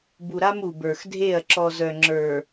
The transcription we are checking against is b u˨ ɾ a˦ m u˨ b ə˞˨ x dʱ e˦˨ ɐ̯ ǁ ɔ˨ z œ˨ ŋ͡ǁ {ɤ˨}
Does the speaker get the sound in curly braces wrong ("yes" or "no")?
yes